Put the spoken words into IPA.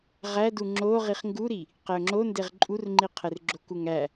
ʁædu ŋ͡ǁo ʁiχŋɡuɾi | qeʊ̯ŋ͡ǁondeʁ ǃʼurŋ͡ǃi qʰerɡ͡ǁokuŋ æ

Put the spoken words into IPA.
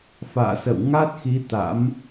fa̰ː˧˨sə̰˧˨w ŋa˦˥t̚xi˨˦ t̪a̰˧˥m

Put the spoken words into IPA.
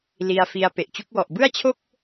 li˧a̯fi˧a̯ pe˨˩ʔt͡ɕu˦˥k̚wɔ˨˩ʔ bɯ˥˩a̯t͡ɕʰo˥˩k̚

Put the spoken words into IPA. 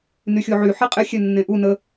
nyxʲoʕy ħiqʼɪ xʲɛnːẽʔu nə

